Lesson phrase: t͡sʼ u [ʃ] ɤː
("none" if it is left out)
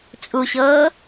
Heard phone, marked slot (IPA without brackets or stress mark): ɕ